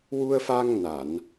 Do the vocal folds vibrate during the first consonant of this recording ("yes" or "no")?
yes